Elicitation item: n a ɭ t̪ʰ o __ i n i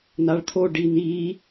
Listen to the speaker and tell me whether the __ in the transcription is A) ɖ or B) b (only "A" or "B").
A